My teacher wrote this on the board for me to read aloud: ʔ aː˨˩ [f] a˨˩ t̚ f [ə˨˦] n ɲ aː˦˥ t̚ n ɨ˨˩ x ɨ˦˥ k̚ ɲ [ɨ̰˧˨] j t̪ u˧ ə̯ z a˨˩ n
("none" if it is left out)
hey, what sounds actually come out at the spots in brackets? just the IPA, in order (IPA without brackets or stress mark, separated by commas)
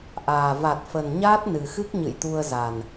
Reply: v, ə˨˩, ɨ̰˧˨